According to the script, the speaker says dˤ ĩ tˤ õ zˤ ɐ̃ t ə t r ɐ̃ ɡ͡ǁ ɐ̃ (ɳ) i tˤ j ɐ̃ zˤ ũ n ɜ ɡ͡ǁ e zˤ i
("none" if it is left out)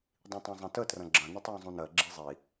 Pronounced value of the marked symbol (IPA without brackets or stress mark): n